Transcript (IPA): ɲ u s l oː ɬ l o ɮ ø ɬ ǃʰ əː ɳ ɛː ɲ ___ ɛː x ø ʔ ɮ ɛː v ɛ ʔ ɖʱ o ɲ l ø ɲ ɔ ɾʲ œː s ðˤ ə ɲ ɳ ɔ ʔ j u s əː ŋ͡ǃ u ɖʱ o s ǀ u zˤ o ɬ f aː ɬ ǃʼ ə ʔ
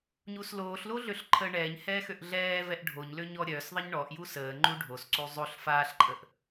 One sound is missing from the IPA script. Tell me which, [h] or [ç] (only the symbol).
h